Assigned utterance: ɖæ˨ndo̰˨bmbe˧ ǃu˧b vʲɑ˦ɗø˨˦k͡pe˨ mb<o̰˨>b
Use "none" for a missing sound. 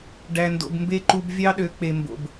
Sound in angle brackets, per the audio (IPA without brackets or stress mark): o̰˨